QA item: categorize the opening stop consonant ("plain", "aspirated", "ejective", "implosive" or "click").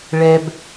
plain